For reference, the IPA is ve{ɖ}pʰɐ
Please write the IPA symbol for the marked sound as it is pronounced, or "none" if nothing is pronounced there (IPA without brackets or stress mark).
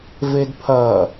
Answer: d